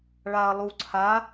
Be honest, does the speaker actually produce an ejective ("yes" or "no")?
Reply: no